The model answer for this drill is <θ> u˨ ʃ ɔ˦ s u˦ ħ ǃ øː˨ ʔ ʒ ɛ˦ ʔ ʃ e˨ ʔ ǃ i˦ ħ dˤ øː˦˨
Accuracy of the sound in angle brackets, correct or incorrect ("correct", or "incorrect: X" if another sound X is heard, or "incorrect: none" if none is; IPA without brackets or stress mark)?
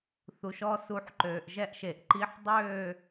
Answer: correct